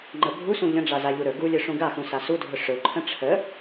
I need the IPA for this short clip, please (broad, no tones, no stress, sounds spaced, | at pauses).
ŋ͡ǃ ə bʱ u s ũ ʎ ə̃ ɖ͡ʐ a z a ʎ u ɾ ɵ ɡ u lʲ ɵ ʂ ũ ɡ a x ũ s a s u dʱ ɵ ʂ ɵ ǃʰ ə̃ ʈ͡ʂʰ ə